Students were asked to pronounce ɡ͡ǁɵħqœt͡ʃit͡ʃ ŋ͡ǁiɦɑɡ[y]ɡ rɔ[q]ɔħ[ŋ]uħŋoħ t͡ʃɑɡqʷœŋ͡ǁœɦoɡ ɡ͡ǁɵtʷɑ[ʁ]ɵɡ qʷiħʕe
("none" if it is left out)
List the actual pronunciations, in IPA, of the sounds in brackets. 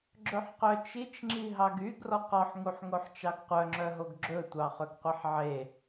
y, q, ŋ, χ

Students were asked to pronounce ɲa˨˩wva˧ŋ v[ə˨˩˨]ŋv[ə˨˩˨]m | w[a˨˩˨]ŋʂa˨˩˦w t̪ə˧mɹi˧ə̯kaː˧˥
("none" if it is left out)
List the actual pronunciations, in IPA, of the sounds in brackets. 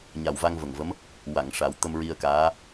ə˨˩, ə˧˥, a˨˩˨

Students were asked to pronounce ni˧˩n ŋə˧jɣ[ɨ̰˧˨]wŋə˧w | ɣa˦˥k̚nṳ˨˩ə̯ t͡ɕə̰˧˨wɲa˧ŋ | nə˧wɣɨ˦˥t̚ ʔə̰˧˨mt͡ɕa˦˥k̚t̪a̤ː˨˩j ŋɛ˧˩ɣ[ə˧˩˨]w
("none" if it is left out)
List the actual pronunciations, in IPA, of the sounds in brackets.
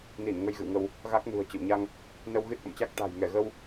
ɨ̰˧˨, ə˧

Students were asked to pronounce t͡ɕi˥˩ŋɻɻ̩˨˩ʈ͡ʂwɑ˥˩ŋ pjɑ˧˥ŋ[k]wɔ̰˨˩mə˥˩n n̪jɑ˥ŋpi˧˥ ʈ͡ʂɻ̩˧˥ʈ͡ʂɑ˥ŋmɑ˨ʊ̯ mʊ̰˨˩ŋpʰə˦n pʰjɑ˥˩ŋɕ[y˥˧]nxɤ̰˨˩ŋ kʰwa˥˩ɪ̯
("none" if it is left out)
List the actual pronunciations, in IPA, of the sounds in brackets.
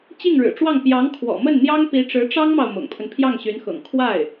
kʰ, y˧˥

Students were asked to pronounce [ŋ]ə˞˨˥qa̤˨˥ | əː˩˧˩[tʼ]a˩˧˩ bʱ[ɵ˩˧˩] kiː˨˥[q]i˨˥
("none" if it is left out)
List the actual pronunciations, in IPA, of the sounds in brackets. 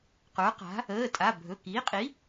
q, tʼ, ɵ˩˧˩, qʼ

